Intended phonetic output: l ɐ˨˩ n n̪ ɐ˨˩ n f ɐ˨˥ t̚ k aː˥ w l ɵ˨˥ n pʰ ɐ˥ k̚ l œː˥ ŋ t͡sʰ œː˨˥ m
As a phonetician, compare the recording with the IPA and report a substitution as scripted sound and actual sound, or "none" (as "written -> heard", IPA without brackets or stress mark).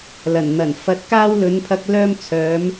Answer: ŋ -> m